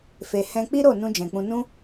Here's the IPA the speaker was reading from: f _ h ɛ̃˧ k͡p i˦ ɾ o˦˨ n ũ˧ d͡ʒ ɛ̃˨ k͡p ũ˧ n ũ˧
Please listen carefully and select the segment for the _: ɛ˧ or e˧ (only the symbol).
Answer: e˧